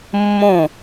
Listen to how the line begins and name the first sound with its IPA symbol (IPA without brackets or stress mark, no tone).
mː